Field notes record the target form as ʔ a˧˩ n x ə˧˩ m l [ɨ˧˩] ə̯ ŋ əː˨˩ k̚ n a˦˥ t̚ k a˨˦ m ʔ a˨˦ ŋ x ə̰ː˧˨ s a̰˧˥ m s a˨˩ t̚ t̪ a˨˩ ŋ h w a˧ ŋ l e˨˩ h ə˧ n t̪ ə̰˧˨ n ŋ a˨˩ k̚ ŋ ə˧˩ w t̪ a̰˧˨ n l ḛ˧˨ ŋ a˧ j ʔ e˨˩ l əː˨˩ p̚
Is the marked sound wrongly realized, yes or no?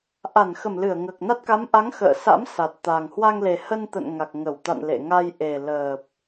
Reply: no